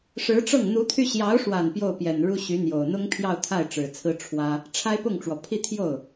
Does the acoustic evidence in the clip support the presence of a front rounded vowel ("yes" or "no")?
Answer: yes